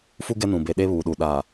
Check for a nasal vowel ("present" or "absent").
present